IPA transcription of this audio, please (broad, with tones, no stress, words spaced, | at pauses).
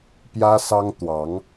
pjä˥sɑ˥ŋ t̪wɑ˧˥ŋ